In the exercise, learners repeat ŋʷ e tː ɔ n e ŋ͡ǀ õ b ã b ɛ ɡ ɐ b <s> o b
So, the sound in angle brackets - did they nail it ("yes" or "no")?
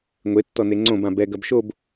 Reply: no